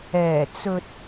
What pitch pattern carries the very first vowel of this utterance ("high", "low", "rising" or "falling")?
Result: low